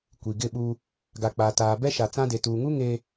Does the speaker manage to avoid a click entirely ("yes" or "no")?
yes